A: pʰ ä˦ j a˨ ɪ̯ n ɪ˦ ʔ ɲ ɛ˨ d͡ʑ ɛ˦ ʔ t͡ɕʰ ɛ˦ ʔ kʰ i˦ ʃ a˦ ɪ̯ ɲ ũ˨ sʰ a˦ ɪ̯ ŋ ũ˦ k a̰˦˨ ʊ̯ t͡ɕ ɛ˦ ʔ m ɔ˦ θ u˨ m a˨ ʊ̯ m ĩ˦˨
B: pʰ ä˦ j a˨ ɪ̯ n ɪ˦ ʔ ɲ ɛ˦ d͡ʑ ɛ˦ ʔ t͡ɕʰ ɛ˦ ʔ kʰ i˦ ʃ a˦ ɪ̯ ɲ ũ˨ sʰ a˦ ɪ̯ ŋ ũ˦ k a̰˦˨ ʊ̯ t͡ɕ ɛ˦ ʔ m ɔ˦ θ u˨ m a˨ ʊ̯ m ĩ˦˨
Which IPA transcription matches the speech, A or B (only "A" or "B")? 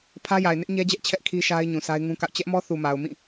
B